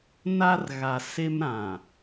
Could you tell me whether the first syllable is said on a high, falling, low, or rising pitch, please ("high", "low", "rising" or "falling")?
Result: high